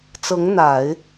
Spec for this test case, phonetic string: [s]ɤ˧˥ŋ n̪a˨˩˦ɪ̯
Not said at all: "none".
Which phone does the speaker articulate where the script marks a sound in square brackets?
t͡s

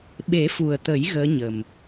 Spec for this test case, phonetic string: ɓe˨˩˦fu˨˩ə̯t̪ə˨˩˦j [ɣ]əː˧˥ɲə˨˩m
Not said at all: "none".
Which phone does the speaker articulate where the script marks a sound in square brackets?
ɣ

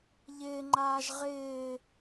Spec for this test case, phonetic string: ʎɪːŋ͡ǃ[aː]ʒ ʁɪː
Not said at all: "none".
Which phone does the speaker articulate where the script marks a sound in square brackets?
aː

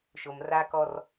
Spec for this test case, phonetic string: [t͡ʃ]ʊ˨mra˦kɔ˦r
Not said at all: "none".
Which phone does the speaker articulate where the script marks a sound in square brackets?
ʃ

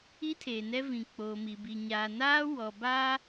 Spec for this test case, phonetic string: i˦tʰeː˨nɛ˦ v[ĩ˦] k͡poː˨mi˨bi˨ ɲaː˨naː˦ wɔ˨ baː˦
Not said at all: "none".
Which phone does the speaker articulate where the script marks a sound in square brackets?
ĩ˨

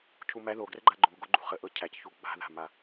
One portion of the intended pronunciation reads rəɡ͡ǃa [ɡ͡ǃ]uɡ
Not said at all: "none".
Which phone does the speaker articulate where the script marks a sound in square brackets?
ɡ͡ǃ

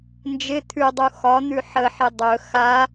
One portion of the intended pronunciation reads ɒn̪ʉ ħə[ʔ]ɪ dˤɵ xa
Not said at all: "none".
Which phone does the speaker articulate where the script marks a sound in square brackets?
ħ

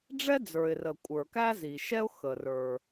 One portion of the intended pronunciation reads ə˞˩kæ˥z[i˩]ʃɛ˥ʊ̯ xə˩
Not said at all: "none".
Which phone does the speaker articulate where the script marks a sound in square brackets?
i˩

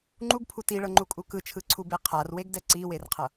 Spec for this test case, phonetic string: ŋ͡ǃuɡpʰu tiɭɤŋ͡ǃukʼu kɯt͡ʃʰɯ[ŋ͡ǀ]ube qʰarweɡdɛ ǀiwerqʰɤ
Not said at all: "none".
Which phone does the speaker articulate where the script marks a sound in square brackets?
ǀʰ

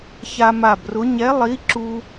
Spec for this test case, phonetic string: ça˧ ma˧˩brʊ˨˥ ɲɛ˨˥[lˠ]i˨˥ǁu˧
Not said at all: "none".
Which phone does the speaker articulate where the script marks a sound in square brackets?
lˠ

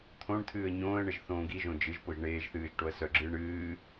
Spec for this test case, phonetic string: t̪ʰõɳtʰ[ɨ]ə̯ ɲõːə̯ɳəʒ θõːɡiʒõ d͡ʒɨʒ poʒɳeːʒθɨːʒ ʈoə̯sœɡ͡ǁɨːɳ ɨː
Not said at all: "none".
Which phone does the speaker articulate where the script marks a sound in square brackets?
ɨː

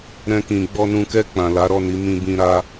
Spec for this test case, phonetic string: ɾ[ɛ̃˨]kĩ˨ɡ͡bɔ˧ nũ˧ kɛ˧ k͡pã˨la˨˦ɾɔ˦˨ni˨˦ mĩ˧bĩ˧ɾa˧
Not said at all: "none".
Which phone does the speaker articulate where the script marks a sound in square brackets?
ɛ̃˧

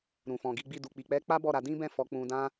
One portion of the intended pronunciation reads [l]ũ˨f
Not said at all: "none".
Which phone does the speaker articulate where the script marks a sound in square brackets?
ɾ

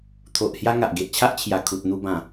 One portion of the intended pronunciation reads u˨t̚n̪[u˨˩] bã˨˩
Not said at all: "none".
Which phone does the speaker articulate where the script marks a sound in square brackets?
u˧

